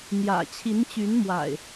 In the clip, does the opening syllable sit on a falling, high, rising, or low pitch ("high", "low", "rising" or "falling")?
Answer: low